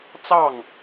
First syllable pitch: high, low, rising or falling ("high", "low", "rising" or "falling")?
falling